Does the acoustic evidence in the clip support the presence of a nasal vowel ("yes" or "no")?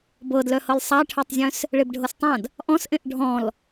yes